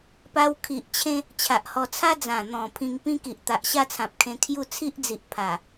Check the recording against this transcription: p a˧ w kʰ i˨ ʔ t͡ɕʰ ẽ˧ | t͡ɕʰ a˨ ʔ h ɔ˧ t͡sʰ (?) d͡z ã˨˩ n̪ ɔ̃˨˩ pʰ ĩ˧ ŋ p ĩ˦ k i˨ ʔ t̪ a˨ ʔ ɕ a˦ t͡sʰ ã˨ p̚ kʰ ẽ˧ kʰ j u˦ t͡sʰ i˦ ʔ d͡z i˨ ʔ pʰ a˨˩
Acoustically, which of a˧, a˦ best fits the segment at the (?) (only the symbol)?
a˦